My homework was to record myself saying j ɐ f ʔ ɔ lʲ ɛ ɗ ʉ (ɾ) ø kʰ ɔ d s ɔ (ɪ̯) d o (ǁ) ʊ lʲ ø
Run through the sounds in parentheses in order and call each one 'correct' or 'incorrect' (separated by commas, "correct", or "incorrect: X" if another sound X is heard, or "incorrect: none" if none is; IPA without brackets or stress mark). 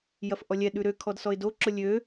correct, correct, correct